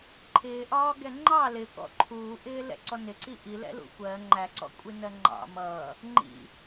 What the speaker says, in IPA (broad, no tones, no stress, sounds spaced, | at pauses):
ǃʰ ɪː ʔ ɒː ɡ ɛ ŋ͡ǃ ɑ l ɪ k ɔ̰ ǃʰ uː ʔ ɪː l ɛ̰ ǀ ɔ n ɪ ǀ i ʔ i l ɛ̰ l ṵ xʷ ɜ ŋ͡ǃ æ ǀ ɔ̰ kʷʼ i n ɜ ŋ͡ǃ ɑ̰ m ʌː | ŋ͡ǃ ḭ